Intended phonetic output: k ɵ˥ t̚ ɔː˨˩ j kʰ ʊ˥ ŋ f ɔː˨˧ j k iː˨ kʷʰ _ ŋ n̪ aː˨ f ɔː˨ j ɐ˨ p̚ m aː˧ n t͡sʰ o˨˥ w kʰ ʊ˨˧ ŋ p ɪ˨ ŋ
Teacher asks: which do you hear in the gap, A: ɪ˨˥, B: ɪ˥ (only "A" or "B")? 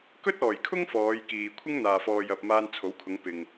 B